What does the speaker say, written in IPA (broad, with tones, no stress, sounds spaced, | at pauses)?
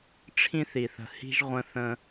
ʈ͡ʂʰ ĩ˦ θ i˨ θ ə̤˨ h i̤˦ ʒ ʁʷ ə̃˦ θ ə̃˦